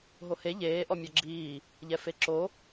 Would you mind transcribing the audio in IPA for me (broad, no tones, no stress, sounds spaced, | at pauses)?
ɦ o h e ʎ eː ʔ ɔ mʲ ɔ ɡ͡ǁ iː | ʎ ɛ f e ǁ o